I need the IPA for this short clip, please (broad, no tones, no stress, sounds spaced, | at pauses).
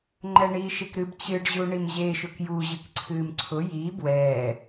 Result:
ŋ͡ǃ ɛ ɳ iː ʃ e k ɾ ɨ b t͡ɕ ɨ ɖ ʑ u ɳ i m ʑ e ʃ ʊ k j u ʑ ɨ k ǀʰ ɨː m ǀʰ ʊ j i b w ɛː